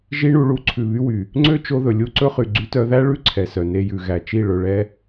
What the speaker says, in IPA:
ʒi˦ɳu˧ɭu˦ ǀʰʉ˨βy˦wy˨ | ŋ͡ǀø˦t͡ʃo˧ðɵ˨ lʲu˧ǀɵ˧χy˨ ɡ͡ǀy˧tœ˧ðæ˦ ɭʉ˦ ǀʰɛ˨sœ˨ne˧ jʉ˨ɣæ˨t͡ʃi˦˨ ɭɵ˧ɭɛ˦

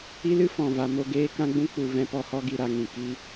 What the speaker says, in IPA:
i˦lɨ˦fɔ̃˨ va˨mo˦˨ ɡeː˦kã˦ɡ͡bũ˦ k͡pu˨ vɛ̃˧pɔ˧hɔ˦ɡi˧ ɾa˧ŋĩ˨ ki˦

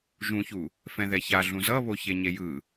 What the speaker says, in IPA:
ʒũçu | fɛ̃ðɛça ɮũzʌβo çeɲejɯ

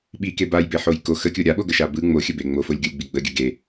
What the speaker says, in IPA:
ɓike bajbeħoj ko xəkʲo ɾʲaɓoɡəʃa bɯ ŋ͡moxʲəbe ŋ͡mofolʲɡʲolʲɡ͡bi ɡ͡bəɡʲə ɡe

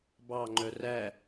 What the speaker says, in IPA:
bɑŋ͡ǃœ ræ

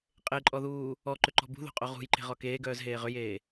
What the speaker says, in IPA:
qʼeǃʼɔðuː | ɔǃʏǃɔ̤ bṳðo̤qʼo ʁṳjǃe̤ʁɔ keːɡœːzɦeː ʁʏjeː

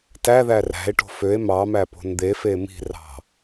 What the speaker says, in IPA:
tæðæ ræ̤e̯ʈo̤ føe̯ mɑmæpo̤n d̪efe mi̤rɑ̤

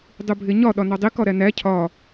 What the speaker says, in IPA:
dˤubʱeɲɒ ɗɒnɒdˤi kɒɾænæ cʰɒ

